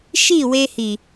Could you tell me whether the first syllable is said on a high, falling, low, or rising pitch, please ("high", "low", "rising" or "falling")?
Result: falling